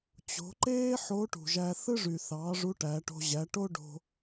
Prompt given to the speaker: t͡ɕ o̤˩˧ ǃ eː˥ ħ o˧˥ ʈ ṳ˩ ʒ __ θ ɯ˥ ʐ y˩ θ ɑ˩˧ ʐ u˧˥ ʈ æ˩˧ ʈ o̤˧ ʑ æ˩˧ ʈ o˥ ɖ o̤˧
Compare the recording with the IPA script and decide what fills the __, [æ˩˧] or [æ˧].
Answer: æ˧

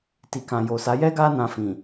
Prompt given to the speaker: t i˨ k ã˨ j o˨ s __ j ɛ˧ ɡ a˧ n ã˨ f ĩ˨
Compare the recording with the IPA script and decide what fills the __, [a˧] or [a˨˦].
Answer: a˨˦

